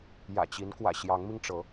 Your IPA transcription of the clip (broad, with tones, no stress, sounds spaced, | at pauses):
j ä̰˨˩ t͡ɕ i˨˦ n k w ä̰˨˩ ɕ j ɑ˨˦ ŋ m i˧ ŋ ʈ͡ʂ ɤ˨˦